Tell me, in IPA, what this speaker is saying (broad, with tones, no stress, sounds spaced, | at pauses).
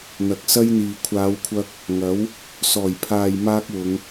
n̪ ɐ˨˥ k̚ s ɐ˥ j n̪ iː˨ kʷʰ aː˨˧ w kʷʰ ɐ˧ k̚ | ŋ ɐ˨˥ w | s ɔː˨˩ j pʰ aː˨ j m aː˥ k̚ w ʊ˨˧ ŋ